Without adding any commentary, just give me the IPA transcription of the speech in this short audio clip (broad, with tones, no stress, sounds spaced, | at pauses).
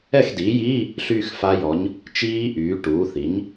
ɛ˥˩ x d iː˩˥ j iː˧˥˧ | ɬ yː˥˧ x f a˦˥ j ɔ˩˥ ɲ | t͡ʃ iː˦˥ ʔ yː˩˥ ʈ uː˩˥ θ i˩˥ ɲ